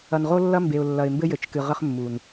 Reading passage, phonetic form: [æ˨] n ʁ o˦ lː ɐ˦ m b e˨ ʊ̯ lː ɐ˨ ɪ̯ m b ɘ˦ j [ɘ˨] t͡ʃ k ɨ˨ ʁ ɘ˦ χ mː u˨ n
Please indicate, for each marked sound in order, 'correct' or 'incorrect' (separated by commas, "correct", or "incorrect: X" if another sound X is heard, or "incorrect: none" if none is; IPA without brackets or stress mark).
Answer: incorrect: ɐ˨, correct